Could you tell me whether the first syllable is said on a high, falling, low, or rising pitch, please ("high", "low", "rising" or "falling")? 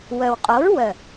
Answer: low